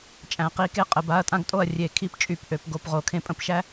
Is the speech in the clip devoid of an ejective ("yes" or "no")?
no